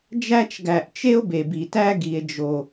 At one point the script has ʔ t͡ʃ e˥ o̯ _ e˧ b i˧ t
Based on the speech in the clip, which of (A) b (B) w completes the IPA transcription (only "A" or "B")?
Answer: A